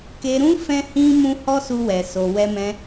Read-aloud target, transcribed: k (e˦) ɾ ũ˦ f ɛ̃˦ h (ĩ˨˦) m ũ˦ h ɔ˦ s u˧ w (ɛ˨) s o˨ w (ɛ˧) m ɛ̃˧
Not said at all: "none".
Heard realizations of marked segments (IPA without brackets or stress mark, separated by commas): e˧, ĩ˦, ɛ˨, ɛ˧